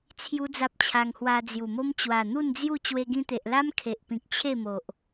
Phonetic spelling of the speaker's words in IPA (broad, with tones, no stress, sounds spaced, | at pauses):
t͡sʰ j u˦ d͡z a˦ p̚ t͡ɕʰ a˧ ŋ h w a˧ d͡z j u˨˩ m o˦ m t͡ɕ w a˨˩ n̪ u˥˧ n d͡z j u˥˧ t͡ɕ w e˧ ɡ ĩ˧ t̪ e˨ ʔ l a˦ m kʰ e˨ ʔ p ĩ˨ k̚ t͡ɕʰ e˥˧ m o˨ ʔ